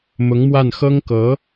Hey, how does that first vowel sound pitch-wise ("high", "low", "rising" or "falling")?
rising